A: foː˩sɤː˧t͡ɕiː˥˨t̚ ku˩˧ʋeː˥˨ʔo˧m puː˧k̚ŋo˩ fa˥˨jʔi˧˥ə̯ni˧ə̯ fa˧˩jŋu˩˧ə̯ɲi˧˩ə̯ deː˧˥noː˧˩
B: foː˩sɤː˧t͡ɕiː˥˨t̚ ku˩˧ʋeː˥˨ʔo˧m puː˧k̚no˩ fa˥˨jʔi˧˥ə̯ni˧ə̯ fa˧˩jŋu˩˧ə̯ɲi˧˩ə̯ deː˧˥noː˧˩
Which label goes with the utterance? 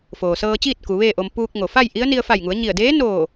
A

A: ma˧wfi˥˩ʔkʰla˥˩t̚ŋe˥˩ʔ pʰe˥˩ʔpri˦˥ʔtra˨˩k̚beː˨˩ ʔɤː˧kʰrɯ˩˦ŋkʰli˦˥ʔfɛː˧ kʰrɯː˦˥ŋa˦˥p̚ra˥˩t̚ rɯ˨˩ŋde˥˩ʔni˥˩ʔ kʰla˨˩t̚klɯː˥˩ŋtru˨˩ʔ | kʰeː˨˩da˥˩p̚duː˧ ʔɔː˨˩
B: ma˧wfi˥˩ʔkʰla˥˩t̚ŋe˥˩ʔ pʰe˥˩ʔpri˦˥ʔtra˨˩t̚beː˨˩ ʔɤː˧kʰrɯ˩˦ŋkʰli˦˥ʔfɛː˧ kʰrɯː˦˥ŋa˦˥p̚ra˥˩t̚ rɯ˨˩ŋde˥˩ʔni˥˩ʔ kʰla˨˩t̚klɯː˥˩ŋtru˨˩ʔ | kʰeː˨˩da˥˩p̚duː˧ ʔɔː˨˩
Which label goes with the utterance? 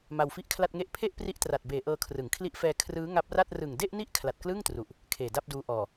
B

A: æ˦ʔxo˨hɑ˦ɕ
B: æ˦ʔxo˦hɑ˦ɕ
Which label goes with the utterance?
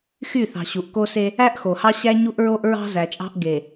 A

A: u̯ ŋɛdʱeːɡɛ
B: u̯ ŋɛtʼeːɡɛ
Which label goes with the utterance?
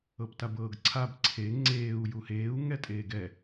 B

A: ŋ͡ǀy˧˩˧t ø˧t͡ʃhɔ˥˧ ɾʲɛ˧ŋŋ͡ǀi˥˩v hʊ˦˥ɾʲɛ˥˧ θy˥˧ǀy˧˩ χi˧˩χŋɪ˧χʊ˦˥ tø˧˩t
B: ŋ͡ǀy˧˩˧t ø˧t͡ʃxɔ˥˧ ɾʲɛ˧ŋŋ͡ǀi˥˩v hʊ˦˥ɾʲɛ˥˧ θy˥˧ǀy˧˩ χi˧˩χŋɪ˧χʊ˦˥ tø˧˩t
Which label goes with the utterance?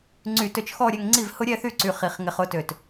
B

